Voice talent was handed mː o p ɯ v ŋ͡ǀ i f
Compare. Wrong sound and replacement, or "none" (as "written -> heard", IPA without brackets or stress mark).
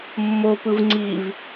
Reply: f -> v